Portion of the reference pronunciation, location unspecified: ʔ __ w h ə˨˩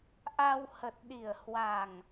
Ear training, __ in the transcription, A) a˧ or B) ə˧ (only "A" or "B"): A